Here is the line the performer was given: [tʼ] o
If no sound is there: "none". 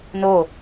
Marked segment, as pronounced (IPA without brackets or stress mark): n